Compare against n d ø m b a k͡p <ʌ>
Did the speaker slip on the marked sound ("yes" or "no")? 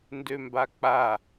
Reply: yes